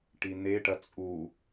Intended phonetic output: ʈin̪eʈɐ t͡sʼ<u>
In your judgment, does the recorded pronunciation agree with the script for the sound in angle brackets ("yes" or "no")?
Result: yes